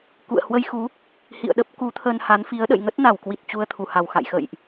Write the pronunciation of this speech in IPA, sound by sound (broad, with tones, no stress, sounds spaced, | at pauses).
k ṵ˧˨ ə̯ h w ə˧ j x u˨˦ | h ḭ˧˨ ə̯ ɗ ə˦˥ p̚ k u˨˦ t̪ʰ ə˧ n h a˨˦ n f i˨˦ ə̯ ɗ ə̰˧˨ j ŋ ə˦˥ t̚ n a˧˩ w k w i˨˩ t̚ t͡ɕ u˧ ə̯ t̪ʰ u˧˩ h a˨˩ w x a̰˧˨ j x ə̰˧˨ j ʔ